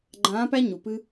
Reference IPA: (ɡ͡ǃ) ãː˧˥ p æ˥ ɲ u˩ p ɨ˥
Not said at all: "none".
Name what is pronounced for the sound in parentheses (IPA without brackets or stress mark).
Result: ɡ͡ǃ